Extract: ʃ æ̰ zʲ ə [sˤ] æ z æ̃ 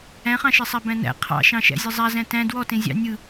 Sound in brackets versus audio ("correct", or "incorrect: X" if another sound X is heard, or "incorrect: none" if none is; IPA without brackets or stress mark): incorrect: zˤ